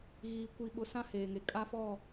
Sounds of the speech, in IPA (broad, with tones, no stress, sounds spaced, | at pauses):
ɣ iː˨ kʷ i˨ ɓ ʊ˨ s ã˦ h eː˨ ŋ e˨ kʼ a˦ f ɔ˦˨